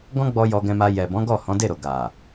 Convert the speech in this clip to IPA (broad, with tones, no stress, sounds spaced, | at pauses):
ɡ ɔ̃˦ ɡ͡b ɔ˧ j ɔ˧ ɡ ɛ̃˧ m a˧ j ɛ˨ b ɔ̃˨˦ ɡ ɔ˦˨ h ɔ̃˨˦ d e˦˨ ɾ o˨ ɡ a˨